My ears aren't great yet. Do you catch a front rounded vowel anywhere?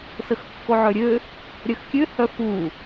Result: yes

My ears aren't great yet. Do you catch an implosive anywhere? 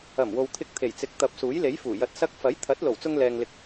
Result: no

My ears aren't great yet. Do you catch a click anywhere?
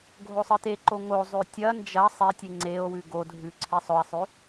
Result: yes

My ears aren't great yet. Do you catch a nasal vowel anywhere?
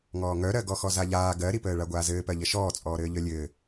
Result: no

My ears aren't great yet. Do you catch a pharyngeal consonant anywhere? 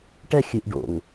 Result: no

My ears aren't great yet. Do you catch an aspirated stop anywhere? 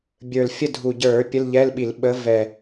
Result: no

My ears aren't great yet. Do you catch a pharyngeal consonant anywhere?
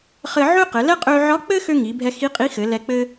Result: yes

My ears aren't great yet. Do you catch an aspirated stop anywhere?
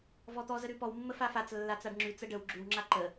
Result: no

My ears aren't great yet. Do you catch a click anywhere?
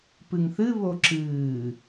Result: yes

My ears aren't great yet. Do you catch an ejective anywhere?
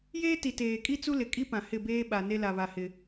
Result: yes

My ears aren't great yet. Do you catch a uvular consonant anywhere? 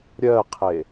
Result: yes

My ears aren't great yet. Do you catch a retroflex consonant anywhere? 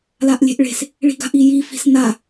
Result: yes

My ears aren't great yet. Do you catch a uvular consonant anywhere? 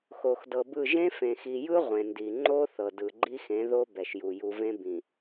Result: yes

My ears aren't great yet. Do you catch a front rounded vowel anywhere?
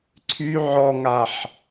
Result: yes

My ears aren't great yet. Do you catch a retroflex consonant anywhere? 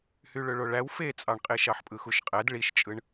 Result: yes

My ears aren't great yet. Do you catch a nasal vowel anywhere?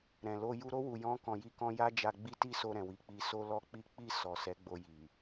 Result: yes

